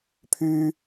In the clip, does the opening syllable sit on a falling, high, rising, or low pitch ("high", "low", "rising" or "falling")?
high